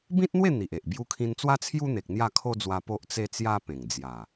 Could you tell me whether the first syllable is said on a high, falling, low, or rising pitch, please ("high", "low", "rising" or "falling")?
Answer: high